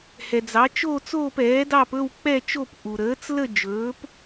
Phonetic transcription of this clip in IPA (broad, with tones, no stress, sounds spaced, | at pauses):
h ɛ˩ d͡z ɑ˩˥ t͡ʃ oː˥˧ t͡s oː˥˧ p ɛː˩˥ d ɑ˥˧ p ɵ˥˧ w k͡p ɛ˥˧ t͡ʃ o˥˧ p ʔ u˩ ɾ əː˩˥ t͡s l ə˥˧ d͡ʒ ɵː˩˥ p